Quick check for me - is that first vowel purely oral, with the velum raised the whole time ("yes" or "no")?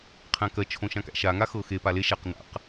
no